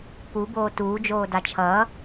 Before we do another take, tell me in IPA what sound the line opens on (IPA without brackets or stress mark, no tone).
p